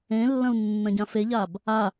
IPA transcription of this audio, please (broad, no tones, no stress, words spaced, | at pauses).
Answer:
ẽlːɐ̃u̯ nːɐ̃ɟãfeʎab | a